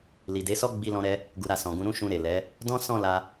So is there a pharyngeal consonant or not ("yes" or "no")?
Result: no